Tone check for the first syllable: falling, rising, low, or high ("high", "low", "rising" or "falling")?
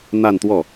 falling